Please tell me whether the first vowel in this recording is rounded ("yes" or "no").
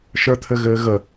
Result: no